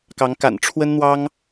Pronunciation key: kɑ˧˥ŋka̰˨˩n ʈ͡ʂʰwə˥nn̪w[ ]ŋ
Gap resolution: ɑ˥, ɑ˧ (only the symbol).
ɑ˥